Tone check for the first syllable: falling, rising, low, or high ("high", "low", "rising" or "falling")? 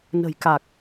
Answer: low